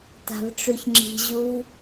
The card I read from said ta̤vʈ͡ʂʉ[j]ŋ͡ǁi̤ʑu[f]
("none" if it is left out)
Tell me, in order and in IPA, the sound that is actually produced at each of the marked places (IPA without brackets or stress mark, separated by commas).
ç, v